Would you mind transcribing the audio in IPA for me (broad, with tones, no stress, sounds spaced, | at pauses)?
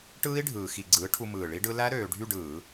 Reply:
ʈ ɯː˦˥ i̯ ɖʱ ɯː˨˩ x i˧˩˧ ɡ͡ǀ ɯː˩˥ ʈʰ u˧ m ɯː˨˩ ɭ i˦˥ ɖ ɯ˦˥ l æ˦˥ ɾ øː˧ ɖʱ y˥˧ ɖ ɯː˧˩˧